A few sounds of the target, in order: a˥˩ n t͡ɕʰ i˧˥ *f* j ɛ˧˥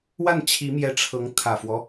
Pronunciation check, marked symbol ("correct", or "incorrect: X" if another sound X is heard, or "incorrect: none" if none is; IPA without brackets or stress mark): incorrect: m